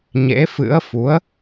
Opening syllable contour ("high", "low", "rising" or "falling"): rising